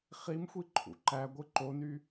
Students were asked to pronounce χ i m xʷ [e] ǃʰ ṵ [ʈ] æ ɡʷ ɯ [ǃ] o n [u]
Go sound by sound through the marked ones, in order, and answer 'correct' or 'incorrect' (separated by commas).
incorrect, incorrect, correct, incorrect